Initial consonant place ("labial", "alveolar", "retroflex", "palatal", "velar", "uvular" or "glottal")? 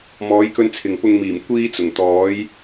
labial